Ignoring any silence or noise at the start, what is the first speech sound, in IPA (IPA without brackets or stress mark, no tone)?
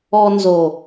ɔ